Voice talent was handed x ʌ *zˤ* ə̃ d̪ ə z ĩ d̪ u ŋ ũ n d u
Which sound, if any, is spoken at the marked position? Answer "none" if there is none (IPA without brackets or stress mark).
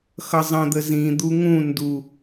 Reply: zˤ